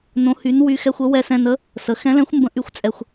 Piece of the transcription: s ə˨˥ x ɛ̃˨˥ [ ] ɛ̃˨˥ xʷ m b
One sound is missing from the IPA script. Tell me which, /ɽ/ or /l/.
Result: l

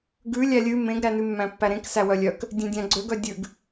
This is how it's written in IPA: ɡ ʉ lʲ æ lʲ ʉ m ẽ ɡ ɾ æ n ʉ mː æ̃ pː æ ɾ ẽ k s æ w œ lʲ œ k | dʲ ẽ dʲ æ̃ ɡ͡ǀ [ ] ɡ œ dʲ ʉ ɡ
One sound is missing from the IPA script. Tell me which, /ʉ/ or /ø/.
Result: ø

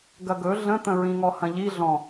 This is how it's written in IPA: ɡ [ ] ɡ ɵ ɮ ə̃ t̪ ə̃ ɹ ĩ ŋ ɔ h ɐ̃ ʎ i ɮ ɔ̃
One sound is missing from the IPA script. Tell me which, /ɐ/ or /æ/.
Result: ɐ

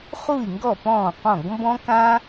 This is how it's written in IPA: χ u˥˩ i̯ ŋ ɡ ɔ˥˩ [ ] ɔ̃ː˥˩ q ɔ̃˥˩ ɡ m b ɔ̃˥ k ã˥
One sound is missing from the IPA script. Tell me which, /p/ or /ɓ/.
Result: p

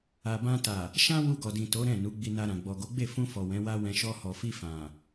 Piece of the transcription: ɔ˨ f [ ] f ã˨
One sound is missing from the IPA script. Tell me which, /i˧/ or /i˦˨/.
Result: i˧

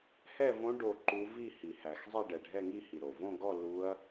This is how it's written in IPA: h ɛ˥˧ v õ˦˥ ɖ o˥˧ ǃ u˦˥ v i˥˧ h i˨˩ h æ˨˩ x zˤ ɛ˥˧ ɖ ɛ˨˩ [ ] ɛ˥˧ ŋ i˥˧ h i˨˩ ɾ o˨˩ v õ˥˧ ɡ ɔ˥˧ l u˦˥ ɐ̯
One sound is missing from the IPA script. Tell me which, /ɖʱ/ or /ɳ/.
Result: ɖʱ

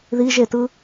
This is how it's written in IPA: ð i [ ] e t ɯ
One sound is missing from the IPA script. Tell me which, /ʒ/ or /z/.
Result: ʒ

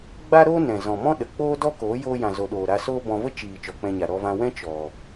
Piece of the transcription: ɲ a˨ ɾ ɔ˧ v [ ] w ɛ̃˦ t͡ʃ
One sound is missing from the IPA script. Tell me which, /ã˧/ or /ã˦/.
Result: ã˧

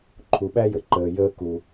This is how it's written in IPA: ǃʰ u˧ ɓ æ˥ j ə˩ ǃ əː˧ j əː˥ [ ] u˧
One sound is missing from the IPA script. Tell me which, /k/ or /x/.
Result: k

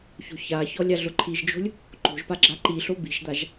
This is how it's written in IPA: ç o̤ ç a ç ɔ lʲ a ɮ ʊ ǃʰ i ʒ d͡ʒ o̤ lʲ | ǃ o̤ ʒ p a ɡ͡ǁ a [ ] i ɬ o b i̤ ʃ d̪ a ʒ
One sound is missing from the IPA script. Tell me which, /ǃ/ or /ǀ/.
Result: ǃ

